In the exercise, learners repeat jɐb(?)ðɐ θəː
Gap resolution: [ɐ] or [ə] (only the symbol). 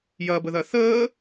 ə